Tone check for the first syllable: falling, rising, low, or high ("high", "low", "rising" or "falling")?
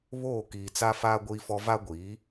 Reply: falling